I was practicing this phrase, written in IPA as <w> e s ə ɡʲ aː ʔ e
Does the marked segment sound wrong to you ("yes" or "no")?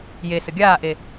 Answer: yes